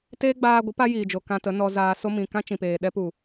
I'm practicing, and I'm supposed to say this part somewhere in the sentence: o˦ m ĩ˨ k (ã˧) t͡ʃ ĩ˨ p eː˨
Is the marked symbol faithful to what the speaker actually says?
no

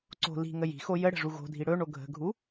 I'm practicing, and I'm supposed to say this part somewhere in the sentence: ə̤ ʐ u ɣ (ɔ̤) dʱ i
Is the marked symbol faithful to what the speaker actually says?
no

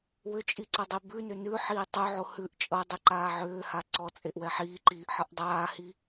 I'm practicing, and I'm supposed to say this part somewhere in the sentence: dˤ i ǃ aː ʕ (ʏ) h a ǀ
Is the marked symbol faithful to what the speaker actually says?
no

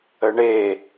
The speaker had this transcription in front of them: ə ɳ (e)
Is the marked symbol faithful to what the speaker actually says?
yes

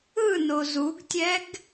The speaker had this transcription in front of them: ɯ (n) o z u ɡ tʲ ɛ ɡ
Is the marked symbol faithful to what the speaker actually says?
yes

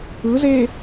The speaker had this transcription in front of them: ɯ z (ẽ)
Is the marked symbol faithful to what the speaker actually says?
no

